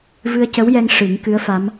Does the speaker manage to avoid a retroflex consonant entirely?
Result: no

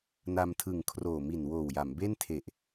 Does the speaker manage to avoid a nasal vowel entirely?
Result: yes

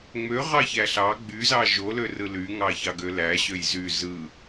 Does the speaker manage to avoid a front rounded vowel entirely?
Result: no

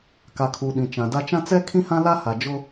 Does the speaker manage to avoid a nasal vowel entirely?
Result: no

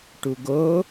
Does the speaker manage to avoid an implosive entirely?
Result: yes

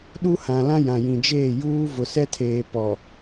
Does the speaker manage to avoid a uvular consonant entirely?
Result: yes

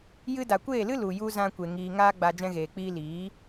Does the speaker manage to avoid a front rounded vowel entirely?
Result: yes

